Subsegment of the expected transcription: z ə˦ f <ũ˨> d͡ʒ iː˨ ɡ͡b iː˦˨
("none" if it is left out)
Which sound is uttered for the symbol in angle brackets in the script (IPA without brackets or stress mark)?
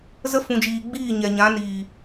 ũ˨